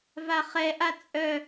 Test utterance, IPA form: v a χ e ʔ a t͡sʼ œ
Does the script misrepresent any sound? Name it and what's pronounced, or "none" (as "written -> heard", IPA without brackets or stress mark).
e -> ɛ